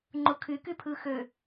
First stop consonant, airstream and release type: click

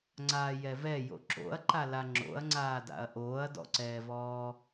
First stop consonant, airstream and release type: click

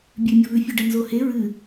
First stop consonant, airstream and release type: plain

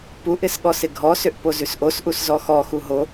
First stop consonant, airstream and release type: plain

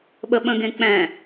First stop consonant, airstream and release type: implosive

